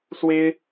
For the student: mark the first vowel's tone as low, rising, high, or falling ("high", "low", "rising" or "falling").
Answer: high